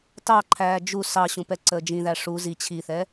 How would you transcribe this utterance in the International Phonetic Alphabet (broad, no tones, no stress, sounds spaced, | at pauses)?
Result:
t ɑ ǃʰ æː d͡ʒ u s ɑ ɕ ũ p ɛ ǀ əː d͡ʒ ĩ ð æ ʂ u z i t͡ɕʰ i θ ɛ